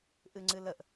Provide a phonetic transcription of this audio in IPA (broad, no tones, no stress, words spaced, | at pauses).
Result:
ʔɨŋ͡ǀɨləʔ